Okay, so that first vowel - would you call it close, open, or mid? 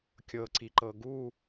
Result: mid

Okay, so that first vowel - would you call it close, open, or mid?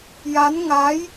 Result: open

